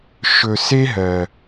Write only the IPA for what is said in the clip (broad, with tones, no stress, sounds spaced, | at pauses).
ʃ ɵ˨ s e˦ ɦ ɜ˨